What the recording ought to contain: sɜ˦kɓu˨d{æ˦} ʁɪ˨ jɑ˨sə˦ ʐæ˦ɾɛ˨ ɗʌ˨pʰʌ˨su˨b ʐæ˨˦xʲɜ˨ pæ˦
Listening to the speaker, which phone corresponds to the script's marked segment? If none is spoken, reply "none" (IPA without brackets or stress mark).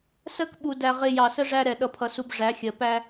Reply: æ˨